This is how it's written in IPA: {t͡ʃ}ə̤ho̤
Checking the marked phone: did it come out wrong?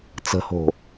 yes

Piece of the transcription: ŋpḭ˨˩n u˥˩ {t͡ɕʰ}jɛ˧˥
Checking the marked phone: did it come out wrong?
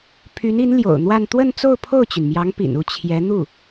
no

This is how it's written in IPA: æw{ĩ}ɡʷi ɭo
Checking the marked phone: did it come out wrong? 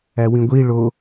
no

